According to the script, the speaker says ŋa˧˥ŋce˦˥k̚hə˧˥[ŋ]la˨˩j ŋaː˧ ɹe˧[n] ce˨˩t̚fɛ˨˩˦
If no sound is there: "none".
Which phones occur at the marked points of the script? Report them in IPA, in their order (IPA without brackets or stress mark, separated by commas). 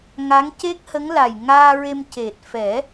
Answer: ŋ, m